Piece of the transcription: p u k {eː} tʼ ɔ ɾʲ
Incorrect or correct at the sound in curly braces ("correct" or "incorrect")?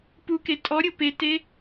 incorrect